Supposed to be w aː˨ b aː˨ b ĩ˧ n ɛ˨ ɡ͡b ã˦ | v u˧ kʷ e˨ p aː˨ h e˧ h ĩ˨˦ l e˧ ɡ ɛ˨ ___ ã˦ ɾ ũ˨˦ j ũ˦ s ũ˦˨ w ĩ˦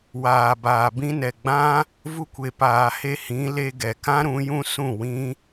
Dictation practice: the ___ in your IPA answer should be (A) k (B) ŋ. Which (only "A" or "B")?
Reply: A